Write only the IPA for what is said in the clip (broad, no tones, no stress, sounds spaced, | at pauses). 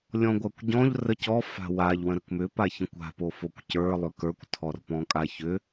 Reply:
lʲ ɔ̃ ɡʷ a kʷ ɟ ɔ̃ ʎ r ə c ɔ f a̤ w a ʎ w ə̃ ɾ ə k m ʏ p a ç ə̃ kʷ a̤ p o f o kʷ c ə˞ lˠ ʏ k ə˞ kʷ tʰ ɔ r p ɔ̃ kʼ a ç ʏ